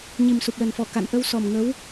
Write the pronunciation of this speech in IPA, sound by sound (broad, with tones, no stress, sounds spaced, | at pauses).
ɲ i˨˩ m s u˨˩ p̚ l ə˨˩ n f ɔ˧˩ k a̰˧˨ n ʔ ə˧ w s ɔ˨˩ m ŋ ə˨˦ w